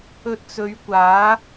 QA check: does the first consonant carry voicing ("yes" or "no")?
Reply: no